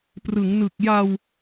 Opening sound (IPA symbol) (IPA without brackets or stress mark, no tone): p